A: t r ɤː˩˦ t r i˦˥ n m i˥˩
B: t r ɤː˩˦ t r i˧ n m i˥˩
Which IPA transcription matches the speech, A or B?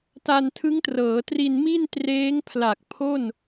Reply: B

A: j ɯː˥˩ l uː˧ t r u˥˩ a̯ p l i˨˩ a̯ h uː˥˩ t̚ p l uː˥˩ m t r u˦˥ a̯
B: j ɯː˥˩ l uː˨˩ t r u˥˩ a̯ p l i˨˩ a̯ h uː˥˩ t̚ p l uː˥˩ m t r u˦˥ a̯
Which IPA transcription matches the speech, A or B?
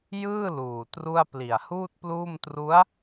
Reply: B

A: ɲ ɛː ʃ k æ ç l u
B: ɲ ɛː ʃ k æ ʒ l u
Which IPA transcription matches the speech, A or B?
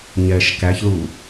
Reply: A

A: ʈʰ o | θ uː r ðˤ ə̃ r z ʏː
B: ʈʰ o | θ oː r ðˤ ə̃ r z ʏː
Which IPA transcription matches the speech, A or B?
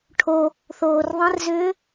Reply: B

